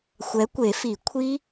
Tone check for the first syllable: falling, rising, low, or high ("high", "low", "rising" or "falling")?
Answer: rising